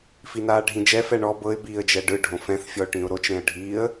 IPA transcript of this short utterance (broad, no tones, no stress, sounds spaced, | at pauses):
f i n aː ɖʱ ĩ d͡ʒ ɛ f ɛ ɳ ɔ b ɤ ɪ̯ b iː ə̯ d͡ʒ ɛ ɖ ɯ ɖʱ õ f ɛ̃ θ fʲ ɔ ʊ̯ ʈ ĩ ʊ̯ ɾ o t͡ʃ ɾ ẽ ə̯ ɖʱ iː ə̯